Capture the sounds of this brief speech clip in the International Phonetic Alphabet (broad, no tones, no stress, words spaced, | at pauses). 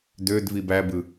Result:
dødvi bæbɯ